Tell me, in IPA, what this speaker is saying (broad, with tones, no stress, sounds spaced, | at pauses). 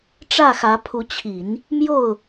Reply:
ʈ͡ʂ ä˥˩ x ä˧˥ pʰ u˧˥ t͡ɕʰ i˨˩˦ n | m j o˥˩ ʊ̯